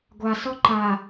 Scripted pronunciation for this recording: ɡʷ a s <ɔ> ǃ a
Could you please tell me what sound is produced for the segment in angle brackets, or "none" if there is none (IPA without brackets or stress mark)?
ɔ